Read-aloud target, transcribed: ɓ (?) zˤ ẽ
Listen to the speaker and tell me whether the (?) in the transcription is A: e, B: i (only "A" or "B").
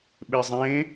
A